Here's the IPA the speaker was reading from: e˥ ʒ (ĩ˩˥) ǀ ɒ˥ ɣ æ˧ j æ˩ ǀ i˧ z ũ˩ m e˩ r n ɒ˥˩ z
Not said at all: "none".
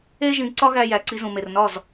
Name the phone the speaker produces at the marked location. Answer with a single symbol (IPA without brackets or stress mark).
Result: ĩ˩˥